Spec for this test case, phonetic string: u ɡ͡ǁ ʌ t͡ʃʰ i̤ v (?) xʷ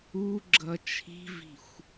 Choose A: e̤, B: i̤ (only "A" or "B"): B